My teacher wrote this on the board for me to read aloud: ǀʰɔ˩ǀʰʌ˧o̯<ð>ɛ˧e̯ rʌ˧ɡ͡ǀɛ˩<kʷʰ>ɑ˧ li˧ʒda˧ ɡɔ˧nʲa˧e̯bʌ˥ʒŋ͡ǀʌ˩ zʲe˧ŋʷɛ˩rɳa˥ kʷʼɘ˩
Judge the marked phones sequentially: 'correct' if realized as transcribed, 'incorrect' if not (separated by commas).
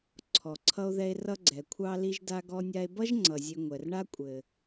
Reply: correct, correct